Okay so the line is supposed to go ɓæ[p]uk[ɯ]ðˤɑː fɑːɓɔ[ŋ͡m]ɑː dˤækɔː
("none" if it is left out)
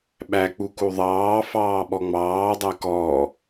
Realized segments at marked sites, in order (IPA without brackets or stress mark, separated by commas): k͡p, u, ŋ͡m